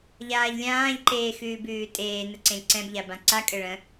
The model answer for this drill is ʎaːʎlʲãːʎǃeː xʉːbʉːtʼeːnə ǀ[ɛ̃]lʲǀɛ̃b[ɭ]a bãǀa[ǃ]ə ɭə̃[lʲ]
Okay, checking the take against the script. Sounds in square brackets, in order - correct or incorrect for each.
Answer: incorrect, incorrect, incorrect, incorrect

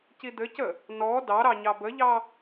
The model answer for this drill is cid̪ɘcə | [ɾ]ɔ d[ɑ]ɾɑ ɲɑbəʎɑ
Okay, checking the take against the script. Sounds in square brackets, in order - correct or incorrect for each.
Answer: incorrect, correct

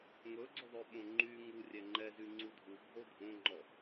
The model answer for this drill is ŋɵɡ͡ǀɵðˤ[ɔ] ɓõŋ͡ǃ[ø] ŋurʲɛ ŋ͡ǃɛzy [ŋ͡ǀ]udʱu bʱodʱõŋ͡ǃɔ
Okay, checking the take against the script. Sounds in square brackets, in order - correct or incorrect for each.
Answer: incorrect, incorrect, correct

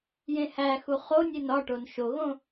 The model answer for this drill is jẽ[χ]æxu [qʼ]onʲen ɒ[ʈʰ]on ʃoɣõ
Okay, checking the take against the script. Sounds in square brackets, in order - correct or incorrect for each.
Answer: incorrect, incorrect, incorrect

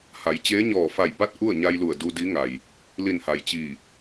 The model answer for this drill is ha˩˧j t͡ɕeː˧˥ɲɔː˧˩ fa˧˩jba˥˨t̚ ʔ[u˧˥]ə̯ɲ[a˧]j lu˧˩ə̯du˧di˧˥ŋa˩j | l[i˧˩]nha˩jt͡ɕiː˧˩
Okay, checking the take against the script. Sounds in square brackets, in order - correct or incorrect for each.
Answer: incorrect, correct, correct

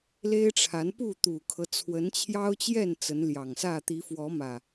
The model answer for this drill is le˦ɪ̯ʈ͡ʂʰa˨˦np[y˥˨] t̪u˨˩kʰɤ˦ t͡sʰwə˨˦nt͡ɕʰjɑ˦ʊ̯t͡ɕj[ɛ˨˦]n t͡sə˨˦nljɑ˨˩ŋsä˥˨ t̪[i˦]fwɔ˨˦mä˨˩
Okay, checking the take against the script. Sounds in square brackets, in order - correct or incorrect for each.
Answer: incorrect, incorrect, incorrect

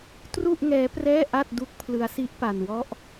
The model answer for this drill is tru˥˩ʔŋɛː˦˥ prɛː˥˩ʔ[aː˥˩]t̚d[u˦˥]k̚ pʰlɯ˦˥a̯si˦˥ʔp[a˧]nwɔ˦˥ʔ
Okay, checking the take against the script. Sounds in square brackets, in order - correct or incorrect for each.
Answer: incorrect, correct, correct

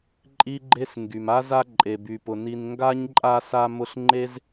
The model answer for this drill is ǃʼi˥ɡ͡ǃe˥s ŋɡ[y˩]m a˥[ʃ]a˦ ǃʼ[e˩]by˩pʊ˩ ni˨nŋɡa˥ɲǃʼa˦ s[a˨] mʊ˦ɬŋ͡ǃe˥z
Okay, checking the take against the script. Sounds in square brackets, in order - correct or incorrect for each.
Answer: correct, incorrect, correct, incorrect

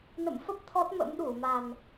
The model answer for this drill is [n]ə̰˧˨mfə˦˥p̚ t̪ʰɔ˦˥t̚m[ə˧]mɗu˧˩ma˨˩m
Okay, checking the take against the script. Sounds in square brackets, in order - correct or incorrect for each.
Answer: correct, incorrect

